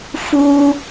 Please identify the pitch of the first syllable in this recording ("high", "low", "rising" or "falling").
high